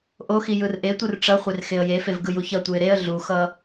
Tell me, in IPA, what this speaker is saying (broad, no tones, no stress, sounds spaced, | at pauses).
ʔ o x i j ɯ r ʔ e tʷ ɯ r ʈ͡ʂ ʌ χʷ e r x e ə̯ j e f e v ɡ ɯ j u ç ʌ tʷ ɯ ɪ̯ ɾ e ə̯ ɮ u x ʌ